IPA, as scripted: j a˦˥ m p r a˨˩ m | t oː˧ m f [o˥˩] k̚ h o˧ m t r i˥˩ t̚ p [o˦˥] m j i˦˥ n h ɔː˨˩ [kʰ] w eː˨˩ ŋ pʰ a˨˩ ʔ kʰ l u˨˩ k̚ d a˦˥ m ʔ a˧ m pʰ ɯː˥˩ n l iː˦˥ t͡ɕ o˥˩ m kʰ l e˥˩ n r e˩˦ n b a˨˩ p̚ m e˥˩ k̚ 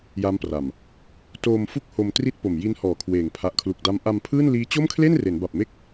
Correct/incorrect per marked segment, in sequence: incorrect: u˥˩, incorrect: o˨˩, correct

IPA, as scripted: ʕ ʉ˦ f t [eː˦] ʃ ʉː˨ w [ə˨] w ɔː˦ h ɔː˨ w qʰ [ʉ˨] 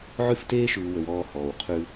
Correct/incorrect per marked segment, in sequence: correct, correct, incorrect: ʉ˦

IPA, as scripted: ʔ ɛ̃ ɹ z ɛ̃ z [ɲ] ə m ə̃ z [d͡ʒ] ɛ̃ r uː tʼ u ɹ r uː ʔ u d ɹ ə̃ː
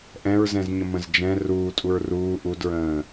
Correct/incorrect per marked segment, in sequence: correct, correct

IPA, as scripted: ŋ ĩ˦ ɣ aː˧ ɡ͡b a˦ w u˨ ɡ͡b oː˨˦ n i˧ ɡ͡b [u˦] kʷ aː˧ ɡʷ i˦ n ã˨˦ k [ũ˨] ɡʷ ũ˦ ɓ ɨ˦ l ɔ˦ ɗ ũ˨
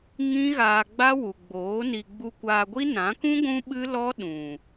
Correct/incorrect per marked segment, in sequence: incorrect: u˧, incorrect: ũ˦

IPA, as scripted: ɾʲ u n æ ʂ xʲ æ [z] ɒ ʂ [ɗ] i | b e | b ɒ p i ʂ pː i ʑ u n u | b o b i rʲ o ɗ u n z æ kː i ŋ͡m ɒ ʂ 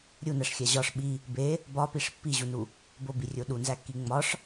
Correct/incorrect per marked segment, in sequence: incorrect: ʑ, incorrect: ɓ

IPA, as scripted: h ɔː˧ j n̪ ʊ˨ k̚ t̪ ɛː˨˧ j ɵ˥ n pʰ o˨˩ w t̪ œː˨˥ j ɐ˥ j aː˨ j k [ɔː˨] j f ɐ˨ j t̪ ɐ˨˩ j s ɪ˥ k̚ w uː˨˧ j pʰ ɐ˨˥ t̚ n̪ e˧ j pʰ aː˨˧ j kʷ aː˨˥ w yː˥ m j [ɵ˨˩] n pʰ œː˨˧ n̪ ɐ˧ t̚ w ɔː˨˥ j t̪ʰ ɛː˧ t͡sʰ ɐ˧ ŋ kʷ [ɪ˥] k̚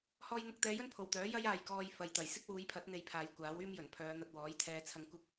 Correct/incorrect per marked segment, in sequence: incorrect: ɔː˧, correct, correct

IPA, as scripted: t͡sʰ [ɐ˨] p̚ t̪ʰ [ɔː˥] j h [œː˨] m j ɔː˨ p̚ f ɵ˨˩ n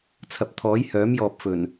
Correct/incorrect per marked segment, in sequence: correct, incorrect: ɔː˨˥, incorrect: œː˨˥

